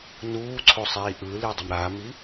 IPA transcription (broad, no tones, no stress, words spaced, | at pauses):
nuːǀʰo sˤiːʔɯli dˤʌmɾami